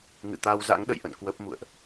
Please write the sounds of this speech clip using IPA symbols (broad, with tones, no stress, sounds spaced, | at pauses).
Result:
ŋ ɨ̰˧˨ t̪ a˧ w z a̰˧˥ ŋ ɗ ə̰˧˨ j ʔ ə̰˧˨ n k w ə˦˥ p̚ m ṵ˧˨ ə̯ ʔ